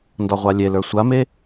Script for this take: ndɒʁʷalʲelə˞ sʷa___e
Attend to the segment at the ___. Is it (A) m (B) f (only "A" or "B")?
A